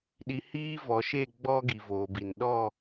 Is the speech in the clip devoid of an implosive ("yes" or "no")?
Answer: no